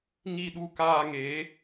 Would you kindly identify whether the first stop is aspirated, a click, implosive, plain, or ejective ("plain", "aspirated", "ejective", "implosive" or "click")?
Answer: implosive